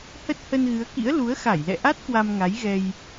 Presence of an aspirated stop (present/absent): absent